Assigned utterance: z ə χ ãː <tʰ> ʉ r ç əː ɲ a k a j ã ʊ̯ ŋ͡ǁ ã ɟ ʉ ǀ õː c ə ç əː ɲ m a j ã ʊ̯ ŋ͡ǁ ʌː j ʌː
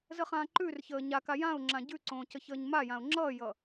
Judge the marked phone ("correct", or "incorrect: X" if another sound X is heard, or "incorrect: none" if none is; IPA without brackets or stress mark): incorrect: ǃ